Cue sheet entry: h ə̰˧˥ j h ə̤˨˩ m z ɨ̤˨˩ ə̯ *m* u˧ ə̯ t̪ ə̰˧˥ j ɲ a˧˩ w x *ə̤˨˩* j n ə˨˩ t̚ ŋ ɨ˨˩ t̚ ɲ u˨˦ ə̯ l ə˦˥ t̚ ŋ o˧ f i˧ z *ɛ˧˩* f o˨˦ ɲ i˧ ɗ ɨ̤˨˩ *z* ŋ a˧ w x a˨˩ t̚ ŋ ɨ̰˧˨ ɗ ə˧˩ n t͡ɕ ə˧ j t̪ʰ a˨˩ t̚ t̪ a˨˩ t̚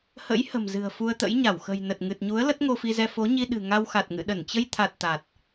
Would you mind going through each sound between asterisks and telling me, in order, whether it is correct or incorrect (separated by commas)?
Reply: incorrect, correct, incorrect, incorrect